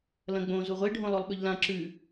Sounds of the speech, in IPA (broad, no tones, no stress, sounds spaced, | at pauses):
l ɐ̃ ɡ͡b õ z u ʁʷ e ɖʱ õ lˠ o lˠ ɓ ɵ ʎ l ã ǁ ʉ